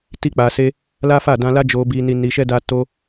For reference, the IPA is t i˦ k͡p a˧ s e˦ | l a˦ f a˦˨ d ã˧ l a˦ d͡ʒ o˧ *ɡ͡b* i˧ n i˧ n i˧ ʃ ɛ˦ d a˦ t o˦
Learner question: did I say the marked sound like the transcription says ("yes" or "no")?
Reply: no